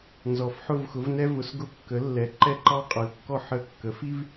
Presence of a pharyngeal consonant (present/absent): present